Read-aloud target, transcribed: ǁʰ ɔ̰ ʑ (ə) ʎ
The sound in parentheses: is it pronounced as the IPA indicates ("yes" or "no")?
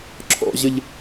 yes